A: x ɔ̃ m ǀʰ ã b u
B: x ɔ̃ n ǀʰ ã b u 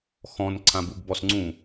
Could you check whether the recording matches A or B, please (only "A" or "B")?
B